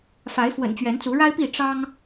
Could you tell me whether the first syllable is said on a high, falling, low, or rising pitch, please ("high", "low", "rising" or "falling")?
rising